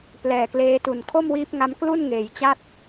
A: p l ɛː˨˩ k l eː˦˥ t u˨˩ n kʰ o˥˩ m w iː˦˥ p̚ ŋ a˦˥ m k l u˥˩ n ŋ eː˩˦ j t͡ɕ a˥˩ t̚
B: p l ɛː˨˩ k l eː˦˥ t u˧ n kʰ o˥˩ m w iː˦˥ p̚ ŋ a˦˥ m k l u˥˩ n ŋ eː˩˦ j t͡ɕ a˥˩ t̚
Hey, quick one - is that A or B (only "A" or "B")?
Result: A